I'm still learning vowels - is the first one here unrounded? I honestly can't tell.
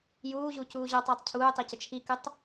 no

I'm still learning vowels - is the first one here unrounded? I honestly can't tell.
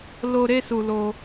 no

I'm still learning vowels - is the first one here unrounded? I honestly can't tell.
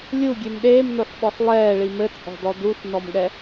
no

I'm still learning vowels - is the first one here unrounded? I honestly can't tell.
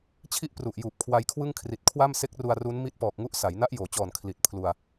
yes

